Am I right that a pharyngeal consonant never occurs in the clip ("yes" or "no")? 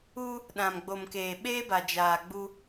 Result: yes